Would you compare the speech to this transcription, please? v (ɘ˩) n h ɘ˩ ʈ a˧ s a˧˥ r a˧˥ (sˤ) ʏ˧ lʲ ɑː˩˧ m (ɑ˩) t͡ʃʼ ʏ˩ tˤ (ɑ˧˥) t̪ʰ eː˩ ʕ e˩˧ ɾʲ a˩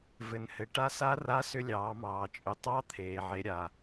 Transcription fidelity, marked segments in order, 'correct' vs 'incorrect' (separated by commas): correct, incorrect, incorrect, correct